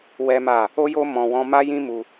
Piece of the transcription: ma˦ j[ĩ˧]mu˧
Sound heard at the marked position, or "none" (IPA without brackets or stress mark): ĩ˦